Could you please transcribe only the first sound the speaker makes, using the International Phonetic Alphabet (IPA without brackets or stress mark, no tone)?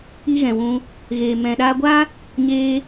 i